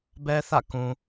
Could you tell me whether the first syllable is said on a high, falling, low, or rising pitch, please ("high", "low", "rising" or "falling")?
high